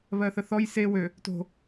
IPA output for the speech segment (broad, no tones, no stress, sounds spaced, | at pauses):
β ɜ θ ə θ ɔ j s e w ø | t o̤